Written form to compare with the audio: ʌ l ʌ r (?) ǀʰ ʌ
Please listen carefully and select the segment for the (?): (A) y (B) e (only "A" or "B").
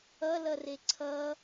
B